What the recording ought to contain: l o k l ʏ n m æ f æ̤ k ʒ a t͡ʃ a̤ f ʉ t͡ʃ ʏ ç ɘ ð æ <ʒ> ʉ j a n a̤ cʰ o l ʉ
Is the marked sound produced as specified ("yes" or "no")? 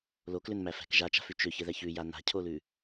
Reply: no